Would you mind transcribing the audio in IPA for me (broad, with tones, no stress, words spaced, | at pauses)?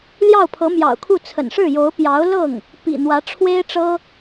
ljɑ˥˩ʊ̯pʰɤ˧˥mjɑ̰˨˩ʊ̯kʰu˥˩ t͡sʰə̰˨˩nʂɻ̩˥˩jo˧˥ʊ̯ pjɑ˧˥ʊ̯lɤ˥˩ŋ | pḭ˨˩ n̪wä˧˥ʈ͡ʂʰwe˥ɪ̯ʈ͡ʂɤ˥